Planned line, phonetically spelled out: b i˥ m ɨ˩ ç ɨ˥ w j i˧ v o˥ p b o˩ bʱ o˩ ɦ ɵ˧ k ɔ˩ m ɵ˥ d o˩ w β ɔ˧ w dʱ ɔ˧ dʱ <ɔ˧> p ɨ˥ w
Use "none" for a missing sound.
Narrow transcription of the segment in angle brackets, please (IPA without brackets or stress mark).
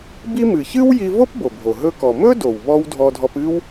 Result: ɔ˧